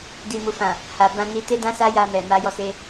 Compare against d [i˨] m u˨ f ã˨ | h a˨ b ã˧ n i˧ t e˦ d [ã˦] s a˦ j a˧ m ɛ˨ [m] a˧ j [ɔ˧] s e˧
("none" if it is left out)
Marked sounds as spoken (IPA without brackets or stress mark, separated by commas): i˨, ã˦, m, ɔ˧